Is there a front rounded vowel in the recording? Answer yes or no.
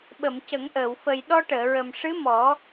no